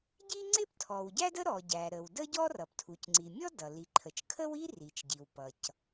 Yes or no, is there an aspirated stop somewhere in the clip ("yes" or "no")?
yes